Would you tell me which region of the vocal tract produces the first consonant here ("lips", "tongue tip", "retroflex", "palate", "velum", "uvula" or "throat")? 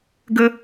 velum